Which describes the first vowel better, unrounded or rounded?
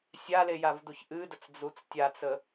unrounded